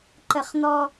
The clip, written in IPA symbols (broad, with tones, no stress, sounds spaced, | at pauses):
ǃ ə˦ χ n̪ ɔ˦